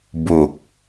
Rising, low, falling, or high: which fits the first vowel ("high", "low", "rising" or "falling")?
low